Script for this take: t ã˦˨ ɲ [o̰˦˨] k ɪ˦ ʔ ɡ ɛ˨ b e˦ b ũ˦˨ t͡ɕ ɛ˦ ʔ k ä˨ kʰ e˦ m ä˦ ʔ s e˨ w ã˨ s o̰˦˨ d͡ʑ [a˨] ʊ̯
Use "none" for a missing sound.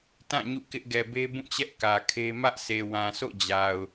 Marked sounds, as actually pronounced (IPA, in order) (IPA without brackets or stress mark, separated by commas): ṵ˦˨, a˨